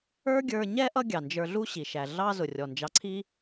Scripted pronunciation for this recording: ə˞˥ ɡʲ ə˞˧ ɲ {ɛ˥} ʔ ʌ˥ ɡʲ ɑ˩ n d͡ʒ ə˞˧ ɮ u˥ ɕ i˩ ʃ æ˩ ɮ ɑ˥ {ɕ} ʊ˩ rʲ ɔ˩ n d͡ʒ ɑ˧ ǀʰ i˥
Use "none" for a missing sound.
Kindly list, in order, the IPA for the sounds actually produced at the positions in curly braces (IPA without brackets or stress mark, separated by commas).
ɛ˥, z